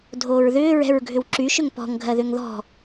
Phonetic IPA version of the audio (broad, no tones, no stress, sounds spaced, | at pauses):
dʱ oː ɹ ð ʏː ɹ ɛ̤ ɹ ɡʱ ʏ w ǁ y ʃ ʏ ŋ p ɔ̤ ŋ ɡʱ ɜ ð ʏ ŋ ð ɔ̤